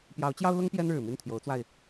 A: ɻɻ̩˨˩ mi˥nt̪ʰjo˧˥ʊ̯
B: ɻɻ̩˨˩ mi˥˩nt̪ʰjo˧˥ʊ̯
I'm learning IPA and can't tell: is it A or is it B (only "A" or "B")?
B